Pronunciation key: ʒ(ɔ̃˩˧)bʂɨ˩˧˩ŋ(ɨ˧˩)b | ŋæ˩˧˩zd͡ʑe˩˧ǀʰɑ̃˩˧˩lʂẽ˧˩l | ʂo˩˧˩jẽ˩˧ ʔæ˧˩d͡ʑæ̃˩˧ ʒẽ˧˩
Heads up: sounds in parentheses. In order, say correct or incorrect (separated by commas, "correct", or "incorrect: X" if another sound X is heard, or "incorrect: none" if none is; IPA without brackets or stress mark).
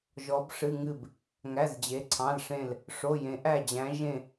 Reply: incorrect: ɔ˩˧, correct